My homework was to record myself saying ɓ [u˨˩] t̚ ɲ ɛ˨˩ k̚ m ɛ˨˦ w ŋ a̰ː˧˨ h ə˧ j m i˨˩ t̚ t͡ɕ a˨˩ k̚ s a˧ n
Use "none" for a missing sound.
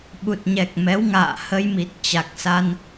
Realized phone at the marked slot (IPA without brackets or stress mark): u˨˩